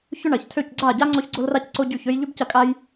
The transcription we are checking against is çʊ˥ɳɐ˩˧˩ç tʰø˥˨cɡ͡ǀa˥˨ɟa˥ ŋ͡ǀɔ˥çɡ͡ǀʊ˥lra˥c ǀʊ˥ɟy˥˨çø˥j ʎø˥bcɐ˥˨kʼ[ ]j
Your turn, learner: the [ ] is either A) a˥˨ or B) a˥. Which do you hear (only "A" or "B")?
B